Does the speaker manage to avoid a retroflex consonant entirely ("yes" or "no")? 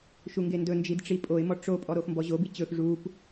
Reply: no